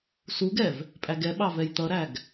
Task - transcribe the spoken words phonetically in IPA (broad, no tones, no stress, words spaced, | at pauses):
suɡɛv | pʼæɡɛɓɑ vɛjt̪ʌɾæɡ